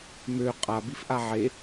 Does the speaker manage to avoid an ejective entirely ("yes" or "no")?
no